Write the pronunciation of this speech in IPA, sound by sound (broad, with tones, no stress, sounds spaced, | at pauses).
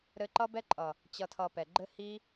ɾ ɘ˧ ǃ ʌ˦ b ɛ˦ ǃʼ ʌ˨ | t͡ɕ ʌ˧ tʰ ʌ˧ p ɛ˨ ɡ͡ǃ ɘ˦ h i˦